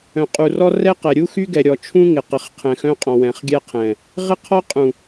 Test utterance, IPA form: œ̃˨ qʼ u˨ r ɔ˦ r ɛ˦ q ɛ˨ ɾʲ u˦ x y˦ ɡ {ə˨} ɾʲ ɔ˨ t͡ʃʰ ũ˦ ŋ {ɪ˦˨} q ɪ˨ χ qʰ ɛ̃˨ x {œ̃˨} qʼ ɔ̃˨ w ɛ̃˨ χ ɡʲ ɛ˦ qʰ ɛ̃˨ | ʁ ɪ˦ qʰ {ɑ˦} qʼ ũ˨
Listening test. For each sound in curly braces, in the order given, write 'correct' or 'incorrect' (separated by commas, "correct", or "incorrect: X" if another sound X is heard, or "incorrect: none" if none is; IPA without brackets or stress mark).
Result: incorrect: ɛ˨, incorrect: ɪ˨, incorrect: œ̃˦, incorrect: ɔ˦